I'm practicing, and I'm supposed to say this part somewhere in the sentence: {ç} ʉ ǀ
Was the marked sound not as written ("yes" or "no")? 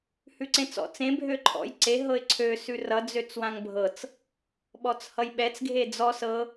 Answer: yes